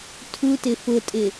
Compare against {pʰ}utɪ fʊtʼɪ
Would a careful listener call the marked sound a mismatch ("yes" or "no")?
yes